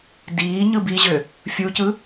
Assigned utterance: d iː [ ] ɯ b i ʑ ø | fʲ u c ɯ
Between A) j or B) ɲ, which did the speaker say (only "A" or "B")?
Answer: B